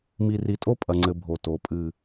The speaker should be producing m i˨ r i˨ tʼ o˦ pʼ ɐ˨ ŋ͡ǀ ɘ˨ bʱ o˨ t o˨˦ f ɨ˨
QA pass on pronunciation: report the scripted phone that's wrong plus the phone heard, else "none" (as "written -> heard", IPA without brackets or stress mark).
f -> pʼ